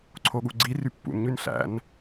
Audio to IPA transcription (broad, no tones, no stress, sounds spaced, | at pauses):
ǀʰ o ɠ u ɡ͡ǀ i r y pː ṵ n ɲ y n ɬ æ̰ n